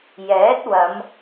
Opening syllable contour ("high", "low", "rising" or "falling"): rising